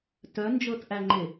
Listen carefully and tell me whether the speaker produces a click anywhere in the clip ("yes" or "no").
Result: yes